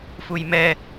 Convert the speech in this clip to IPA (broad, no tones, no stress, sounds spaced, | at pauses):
f u j m ɛ